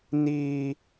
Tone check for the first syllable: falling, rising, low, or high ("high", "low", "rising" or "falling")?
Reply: high